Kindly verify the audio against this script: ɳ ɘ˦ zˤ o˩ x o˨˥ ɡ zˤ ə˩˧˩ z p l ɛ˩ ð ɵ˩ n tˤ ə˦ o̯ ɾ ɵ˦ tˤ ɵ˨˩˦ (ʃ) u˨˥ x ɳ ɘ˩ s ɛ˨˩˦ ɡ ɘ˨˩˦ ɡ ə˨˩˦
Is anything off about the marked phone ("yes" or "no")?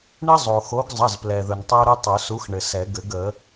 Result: yes